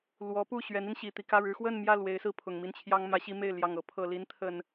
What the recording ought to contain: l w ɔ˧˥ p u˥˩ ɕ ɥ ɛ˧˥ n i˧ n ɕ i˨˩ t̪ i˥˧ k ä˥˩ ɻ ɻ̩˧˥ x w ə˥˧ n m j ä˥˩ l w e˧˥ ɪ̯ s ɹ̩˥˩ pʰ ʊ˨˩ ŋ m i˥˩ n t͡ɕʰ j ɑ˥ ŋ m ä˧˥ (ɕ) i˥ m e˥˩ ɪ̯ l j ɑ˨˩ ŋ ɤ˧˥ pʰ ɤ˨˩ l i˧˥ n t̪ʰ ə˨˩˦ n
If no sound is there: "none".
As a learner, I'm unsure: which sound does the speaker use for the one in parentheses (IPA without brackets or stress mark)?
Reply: ɕ